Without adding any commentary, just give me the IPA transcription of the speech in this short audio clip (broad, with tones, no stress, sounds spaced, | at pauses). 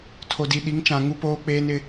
tʰ o˨ d i˨ ɗ i˨˦ ŋ t͡ʃ ã˨ ŋ u˦ p oː˦ k͡p eː˦ n ɪ˦